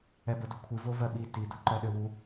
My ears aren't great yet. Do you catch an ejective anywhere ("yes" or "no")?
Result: no